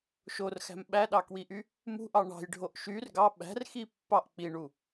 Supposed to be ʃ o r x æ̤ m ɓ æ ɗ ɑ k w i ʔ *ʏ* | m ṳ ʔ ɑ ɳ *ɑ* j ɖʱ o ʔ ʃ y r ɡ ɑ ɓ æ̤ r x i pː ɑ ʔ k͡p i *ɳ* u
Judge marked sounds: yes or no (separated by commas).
no, no, yes